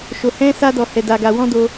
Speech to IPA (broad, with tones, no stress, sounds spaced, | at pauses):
ʃ o˧ h ɛ̃˦ s a˦ d ɔ˧ h ɛ˧ d a˧ ɡ a˧ w ɔ̃˦ d o˧